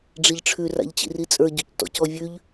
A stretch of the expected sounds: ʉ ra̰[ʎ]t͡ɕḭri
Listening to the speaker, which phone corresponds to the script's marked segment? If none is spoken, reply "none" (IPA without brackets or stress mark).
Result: ʎ